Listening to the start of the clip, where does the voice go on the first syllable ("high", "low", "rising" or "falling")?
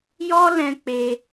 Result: high